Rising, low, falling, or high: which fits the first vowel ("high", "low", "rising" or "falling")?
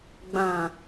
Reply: low